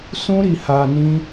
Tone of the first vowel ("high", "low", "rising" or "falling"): high